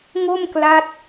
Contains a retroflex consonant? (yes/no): no